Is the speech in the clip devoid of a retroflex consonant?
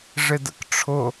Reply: no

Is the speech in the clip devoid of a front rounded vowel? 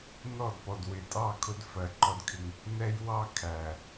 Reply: yes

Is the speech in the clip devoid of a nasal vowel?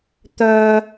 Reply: yes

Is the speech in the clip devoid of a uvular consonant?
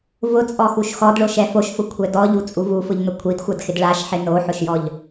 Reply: yes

